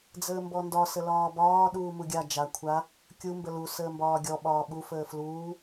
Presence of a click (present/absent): absent